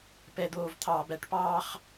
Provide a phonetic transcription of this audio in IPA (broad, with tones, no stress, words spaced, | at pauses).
pɛ˨d̪oː˨vt̪ʰɑː˨bæ˦ʈ pɑː˦χ